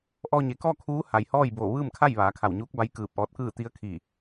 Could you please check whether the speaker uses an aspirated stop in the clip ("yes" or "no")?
yes